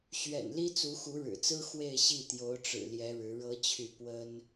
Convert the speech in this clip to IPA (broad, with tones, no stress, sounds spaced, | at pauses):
ɕ ɥ ɛ̰˨˩ n l i˥ t͡s u˧˥ x u˧˥ ɻ ɻ̩˨˩ t͡s ɹ̩˥ x w e˥˧ ɪ̯ ɕ i˥˩ t̪ j o˧˥ ʊ̯ ʈ͡ʂ ɻ̩˨˩ l j ɛ˧˥ ɻ ɻ̩˧˥ ɻ ɤ˥ t͡ɕʰ y˥˩ p w ə˥ n